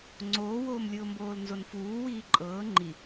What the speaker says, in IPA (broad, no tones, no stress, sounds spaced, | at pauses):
ŋ͡ǀ oː w oː m lʲ ʊː m b oː l n z o n f uː w iː ǃʼ ɤː ŋ͡ǃ i